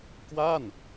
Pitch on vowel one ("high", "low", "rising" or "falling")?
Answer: falling